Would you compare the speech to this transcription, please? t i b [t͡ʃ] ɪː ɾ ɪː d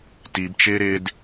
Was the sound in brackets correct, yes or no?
yes